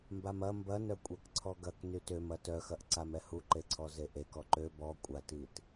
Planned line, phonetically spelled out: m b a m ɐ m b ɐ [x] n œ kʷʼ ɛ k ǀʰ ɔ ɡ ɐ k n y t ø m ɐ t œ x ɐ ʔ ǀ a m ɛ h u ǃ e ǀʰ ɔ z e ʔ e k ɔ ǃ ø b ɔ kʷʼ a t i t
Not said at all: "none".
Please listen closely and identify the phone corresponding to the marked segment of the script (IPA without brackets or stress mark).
none